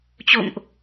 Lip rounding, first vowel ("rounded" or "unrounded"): rounded